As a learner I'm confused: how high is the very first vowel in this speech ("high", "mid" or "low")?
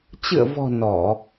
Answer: high